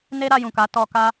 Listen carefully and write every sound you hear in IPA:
n e˦ ɾ a˧ j ũ˨ k a˨˦ t ɔ˧ k a˦

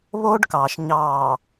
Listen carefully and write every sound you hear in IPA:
β oː˦ ɖ k ɑː˨ ʃ ɲ ɑː˨

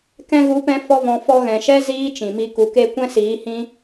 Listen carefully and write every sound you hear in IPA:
k ɛ̃˧ ɣ u˨˦ p ɛ̃˧ f ɔ˦ v ɔ̃˧ f ɔ˧ ɣ ɛ̃˨ ʃ ɛ˦ z iː˦ t͡ʃ ĩ˨ m i˧ k u˨ k e˦˨ kʷ ɛ̃˦ s iː˨˦ h ĩ˦

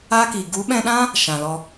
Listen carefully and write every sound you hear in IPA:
aː˦ k iː˨ ɡ u˨˦ ɓ ɛ̃˧ ɗ ã˦ | ʃ ã˨ l ɔ˧

